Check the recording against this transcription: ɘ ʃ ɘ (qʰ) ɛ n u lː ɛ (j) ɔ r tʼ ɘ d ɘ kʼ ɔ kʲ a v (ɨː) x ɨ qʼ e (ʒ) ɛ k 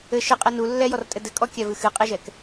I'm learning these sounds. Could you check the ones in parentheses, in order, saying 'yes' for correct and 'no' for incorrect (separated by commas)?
no, yes, no, yes